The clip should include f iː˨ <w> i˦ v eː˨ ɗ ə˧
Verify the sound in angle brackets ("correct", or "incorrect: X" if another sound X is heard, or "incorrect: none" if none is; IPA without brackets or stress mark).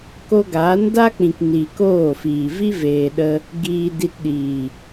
incorrect: v